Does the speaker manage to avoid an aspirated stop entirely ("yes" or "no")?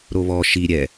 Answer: yes